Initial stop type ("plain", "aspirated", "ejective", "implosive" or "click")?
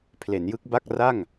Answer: aspirated